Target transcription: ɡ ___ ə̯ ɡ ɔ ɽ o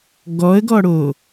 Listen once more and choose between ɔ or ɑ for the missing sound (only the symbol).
ɔ